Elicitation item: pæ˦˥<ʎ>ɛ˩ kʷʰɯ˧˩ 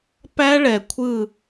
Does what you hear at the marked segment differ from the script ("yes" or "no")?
yes